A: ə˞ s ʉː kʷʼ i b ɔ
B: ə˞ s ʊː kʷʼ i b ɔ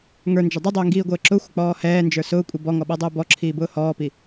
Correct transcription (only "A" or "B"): B